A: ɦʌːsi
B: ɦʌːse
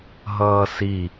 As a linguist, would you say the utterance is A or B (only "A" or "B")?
A